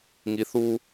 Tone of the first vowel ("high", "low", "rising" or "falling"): low